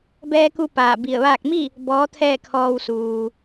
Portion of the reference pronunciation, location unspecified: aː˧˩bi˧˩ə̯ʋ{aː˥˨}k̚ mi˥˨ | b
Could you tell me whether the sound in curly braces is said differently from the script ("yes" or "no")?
no